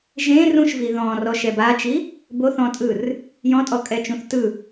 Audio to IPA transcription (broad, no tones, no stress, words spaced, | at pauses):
ʒẽ rũʃvi ðɔ̃rɔʃɛ bat͡ʃi | boθɔ̃tʼɯr | jɔ̃tʼɔkʼɛt͡ʃũθ tɯ